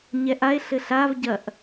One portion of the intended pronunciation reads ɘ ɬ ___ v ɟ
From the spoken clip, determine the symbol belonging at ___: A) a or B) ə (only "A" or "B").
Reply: A